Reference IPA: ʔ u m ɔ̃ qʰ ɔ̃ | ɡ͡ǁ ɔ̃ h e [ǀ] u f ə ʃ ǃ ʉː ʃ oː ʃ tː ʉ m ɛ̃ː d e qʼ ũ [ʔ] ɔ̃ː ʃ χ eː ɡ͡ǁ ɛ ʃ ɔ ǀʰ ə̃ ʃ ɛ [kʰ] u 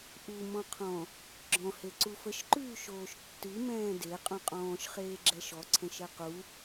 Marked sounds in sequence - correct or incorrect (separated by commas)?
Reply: correct, incorrect, incorrect